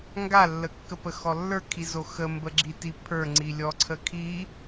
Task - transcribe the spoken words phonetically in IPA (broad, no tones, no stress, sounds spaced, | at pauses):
ŋ ɡ a lː ə kː ə p ə x ɔ lː ə˞ kʰ i z o x ə m b ə ɡ͡ǁ i t i pʰ ə˞ ŋ͡ǀ i lʲ ɔ ǀʰ ə kʰ i